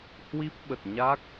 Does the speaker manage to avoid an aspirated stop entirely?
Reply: yes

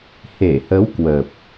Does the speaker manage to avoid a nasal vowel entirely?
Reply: yes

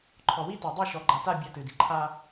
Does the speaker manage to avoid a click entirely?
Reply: no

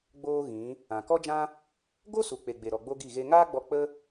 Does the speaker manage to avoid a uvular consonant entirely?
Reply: yes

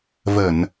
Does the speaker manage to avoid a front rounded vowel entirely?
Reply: yes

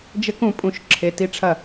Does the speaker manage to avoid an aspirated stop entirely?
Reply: no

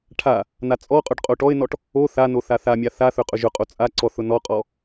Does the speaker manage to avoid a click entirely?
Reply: no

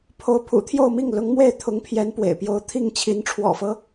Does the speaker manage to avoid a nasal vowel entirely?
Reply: yes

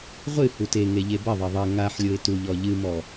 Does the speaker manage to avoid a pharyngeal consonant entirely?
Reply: no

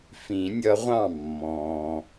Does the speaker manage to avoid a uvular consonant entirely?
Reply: no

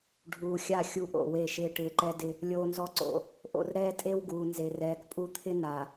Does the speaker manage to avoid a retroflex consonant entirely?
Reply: no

